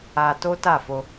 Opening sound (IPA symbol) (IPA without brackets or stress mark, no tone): a